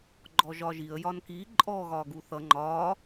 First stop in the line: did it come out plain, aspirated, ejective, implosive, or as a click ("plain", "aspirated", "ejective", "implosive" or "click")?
click